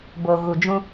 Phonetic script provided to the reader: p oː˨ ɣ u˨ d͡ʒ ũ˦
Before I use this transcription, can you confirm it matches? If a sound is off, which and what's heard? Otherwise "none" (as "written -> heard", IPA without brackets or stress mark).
p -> b